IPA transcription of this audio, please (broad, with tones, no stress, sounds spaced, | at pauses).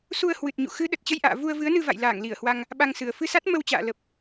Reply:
s u˧ ə̯ h w ɨ˨˩ t̚ ɲ ṵ˧˨ x ɨ˨˦ ɗ ə˨˩ t̚ t͡ɕ ə˧ j ʔ a̰ː˧˨ v u˧ ə̯ v ɨ˨˦ ə̯ n ɨ˧ v a̰˧˨ j l aː˧˩ ŋ l i˧˩ ə̯ h w a˧ ŋ | ɓ a˧ ŋ s ɨ˨˩ ə̯ f ɨ˧ s a˦˥ t̚ m ə˧ w t͡ɕ a̰ː˧˨ l ə˨˩ p̚